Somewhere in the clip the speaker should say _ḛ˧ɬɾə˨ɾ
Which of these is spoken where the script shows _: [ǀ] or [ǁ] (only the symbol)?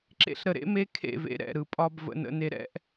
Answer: ǁ